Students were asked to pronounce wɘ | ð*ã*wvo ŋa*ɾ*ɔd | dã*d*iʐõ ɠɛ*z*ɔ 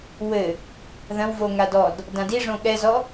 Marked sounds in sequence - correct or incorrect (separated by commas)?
incorrect, incorrect, correct, correct